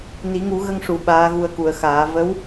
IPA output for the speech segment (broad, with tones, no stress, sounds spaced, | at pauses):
n i˨˩˦ ŋ u˨˩˦ ɣ ə˧ ŋ ʂ u˨˩˨ ɓ aː˧˥ ɣ u˧ ə̯ k u˨˩˨ ə̯ x aː˨˩˦ v ə˧˥ w